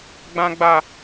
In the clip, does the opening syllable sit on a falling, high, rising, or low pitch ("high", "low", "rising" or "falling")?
high